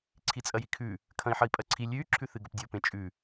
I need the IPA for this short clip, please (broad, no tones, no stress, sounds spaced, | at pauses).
ǀʰ i t͡sʼ ɐ j i kʰ ʉ | kʰ ɐ̃ i̯ ħ ɐ i̯ pʼ ɐ ǀʰ i lʲ ʉ y̯ ǁʰ ʉ θ ɨ ɡ ɵ p dʲ o p ẽ t͡ʃʼ ʉ